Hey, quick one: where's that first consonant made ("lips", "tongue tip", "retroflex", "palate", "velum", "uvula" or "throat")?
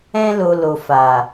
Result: tongue tip